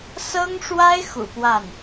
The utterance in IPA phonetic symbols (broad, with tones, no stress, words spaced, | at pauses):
sɤ˥ŋʂwa˥ɪ̯ xṵ˨˩pwa˥˩n